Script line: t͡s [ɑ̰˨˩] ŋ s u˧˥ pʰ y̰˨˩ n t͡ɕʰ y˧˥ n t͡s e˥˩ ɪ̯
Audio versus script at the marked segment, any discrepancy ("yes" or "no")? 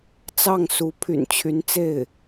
yes